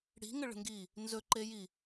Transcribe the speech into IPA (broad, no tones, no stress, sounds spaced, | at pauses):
ɽ i̤ ŋ ə ɭ ə̤ ŋ ɡ i | n z ɵ ǃ e j i